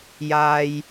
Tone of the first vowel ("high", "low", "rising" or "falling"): high